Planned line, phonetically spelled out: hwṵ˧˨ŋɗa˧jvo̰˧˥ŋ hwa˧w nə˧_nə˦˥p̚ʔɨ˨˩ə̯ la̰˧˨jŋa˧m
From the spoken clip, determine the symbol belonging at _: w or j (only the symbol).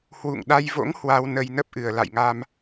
j